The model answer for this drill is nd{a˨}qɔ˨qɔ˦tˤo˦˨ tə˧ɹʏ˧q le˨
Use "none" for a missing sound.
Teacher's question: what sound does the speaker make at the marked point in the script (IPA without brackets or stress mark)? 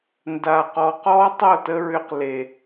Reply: a˨